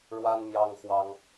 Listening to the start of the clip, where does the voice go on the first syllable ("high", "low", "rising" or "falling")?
high